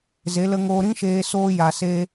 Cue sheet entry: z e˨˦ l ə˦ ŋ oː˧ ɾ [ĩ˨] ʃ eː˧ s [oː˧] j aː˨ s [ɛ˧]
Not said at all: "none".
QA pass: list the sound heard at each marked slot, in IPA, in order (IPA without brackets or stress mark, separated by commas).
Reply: ĩ˦, oː˦, e˧